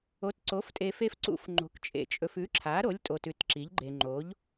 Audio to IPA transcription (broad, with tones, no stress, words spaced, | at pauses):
o˨˥tǀo˨˥ftʼe˧ fe˧fǀṵ˨˥f ŋ͡ǃo̤˨˥kt͡ʃʼḛ˧t͡ʃʼɵ˧f ʉ˨˥ǁʰa˨˥ɾo˨˥lʲ tʼo˧tʉ˨˥tǁi˨˥ʎɡ͡ǃe˧ ŋ͡ǃo˨˥ʎ